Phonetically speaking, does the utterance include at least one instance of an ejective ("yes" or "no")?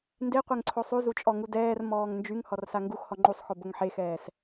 yes